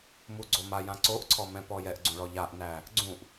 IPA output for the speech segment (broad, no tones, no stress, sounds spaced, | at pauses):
m u ɡ͡ǀ o m a j ã ǀ o ʔ ǀʰ ɔ m ɛ̃ p ɔ j ɛ ʔ ɡ͡ǀ ũ ɭ ɔ ʎ a ʔ n æ | ɡ͡ǀ ũ ʔ